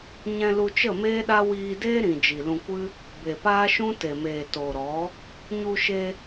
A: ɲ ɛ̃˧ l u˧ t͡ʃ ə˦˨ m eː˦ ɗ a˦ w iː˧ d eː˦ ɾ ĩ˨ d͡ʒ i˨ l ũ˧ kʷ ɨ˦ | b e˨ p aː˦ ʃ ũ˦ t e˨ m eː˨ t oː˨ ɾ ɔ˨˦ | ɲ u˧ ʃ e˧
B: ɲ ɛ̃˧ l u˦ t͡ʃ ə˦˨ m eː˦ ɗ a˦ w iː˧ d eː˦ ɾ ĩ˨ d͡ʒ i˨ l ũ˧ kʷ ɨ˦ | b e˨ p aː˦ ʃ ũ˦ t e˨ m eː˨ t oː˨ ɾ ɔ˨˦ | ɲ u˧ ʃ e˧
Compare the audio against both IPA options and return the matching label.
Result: A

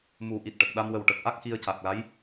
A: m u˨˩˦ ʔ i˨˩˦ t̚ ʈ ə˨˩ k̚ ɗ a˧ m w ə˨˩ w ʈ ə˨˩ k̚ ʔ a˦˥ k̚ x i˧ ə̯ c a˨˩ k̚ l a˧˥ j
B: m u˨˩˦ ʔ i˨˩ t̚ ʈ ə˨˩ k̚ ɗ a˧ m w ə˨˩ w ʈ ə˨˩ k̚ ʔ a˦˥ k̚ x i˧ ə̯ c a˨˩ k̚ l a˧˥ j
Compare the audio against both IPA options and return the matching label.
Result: B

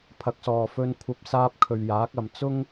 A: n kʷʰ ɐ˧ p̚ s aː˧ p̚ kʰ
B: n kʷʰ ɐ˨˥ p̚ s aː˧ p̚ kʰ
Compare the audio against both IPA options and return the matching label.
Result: A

